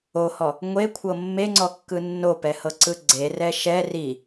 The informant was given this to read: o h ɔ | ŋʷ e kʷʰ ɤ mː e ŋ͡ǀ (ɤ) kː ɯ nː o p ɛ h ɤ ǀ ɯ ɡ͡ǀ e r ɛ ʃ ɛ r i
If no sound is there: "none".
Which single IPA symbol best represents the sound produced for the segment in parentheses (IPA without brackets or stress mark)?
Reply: ɔ